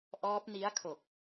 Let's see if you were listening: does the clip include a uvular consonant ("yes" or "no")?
no